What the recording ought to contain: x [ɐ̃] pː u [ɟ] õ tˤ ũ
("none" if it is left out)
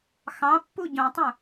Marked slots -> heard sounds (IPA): ɑ̃, ɟ

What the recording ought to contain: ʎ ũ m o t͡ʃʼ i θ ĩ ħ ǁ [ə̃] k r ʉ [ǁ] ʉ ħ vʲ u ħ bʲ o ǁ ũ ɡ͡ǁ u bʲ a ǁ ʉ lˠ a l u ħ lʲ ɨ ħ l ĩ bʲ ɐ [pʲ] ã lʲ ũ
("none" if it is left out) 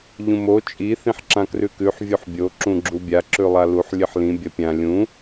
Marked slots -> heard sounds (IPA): ã, k, pʲ

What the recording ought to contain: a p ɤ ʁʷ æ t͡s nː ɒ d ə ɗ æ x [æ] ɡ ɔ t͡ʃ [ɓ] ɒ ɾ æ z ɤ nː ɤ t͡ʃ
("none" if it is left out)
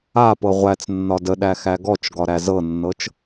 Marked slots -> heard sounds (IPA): æ, ɡ

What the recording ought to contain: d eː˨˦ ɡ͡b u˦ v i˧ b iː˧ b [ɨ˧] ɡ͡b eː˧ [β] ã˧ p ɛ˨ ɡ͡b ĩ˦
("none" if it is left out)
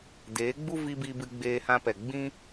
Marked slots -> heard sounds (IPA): ɨ˧, h

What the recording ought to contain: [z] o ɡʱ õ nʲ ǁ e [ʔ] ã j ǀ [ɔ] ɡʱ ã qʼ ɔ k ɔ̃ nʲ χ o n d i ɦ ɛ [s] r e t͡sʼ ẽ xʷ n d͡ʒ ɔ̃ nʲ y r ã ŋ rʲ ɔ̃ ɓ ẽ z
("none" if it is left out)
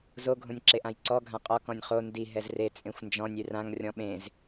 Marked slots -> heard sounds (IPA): z, ʔ, ɔ, z

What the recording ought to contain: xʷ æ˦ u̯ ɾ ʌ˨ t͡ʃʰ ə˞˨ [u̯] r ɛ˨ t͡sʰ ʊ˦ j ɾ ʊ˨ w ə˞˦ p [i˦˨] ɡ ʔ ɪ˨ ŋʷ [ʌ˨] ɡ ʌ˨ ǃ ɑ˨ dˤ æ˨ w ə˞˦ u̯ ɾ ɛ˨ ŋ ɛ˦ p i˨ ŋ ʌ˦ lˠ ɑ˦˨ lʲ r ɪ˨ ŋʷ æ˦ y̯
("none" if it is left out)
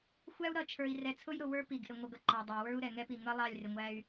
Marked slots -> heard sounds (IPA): i̯, i˨, ʌ˨

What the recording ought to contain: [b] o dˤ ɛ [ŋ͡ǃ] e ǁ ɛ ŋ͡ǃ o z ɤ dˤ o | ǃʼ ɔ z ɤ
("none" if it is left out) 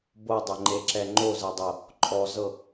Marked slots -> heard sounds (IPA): b, ŋ͡ǃ

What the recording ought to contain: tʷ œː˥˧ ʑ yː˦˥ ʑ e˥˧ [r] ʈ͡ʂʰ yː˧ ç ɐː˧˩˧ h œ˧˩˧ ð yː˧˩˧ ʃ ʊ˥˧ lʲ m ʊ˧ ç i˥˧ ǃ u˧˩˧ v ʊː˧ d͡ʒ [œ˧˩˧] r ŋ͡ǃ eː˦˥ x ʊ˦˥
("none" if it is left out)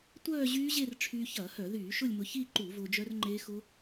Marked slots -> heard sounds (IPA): r, œ˦˥

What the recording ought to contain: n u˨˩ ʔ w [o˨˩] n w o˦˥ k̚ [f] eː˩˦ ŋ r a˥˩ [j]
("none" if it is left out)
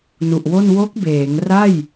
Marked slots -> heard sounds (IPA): o˥˩, b, j

